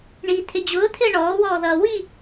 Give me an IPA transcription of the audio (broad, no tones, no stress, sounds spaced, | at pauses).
ɳ i t̪ʰ ɪ d͡ʑ ʊː t̪ʰ ɪː ɳ ɔː w ɔː ð ʌː w i